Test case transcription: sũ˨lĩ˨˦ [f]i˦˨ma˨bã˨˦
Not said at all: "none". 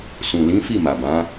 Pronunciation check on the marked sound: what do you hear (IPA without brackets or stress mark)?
f